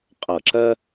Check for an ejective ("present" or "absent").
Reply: present